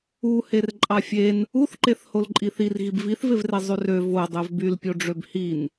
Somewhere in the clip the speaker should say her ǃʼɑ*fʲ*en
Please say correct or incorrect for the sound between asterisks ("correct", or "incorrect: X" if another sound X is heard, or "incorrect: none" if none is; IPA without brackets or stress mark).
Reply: correct